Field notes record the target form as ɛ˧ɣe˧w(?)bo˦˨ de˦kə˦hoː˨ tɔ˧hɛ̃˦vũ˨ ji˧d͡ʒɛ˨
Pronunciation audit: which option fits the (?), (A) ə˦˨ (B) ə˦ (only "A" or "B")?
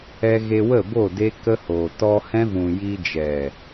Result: A